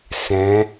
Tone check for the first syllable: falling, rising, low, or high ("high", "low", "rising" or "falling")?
rising